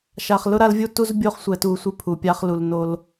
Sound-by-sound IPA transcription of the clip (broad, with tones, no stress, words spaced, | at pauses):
ʃa˨χlʊ˦ɾa˦l vʲu˦tu˦zbʲo˦χ sʷɛ˨tu˨ sʷi˦pʰu˨ pʲa˦χlu˨l no˦l